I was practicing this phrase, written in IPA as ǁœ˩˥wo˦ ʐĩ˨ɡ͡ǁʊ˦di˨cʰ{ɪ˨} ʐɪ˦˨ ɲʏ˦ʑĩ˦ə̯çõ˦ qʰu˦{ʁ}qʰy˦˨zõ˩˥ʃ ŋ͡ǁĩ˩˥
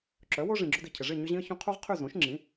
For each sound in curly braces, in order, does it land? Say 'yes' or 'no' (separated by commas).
yes, yes